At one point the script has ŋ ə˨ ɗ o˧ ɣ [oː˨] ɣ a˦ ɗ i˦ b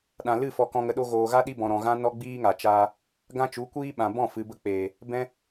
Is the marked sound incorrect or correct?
correct